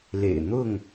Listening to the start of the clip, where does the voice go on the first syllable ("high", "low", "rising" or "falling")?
low